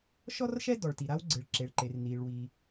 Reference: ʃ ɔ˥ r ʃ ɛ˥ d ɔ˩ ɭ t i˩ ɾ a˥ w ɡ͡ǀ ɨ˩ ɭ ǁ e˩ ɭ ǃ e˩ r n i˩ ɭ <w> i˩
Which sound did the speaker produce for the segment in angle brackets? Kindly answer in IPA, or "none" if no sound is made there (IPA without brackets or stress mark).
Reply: w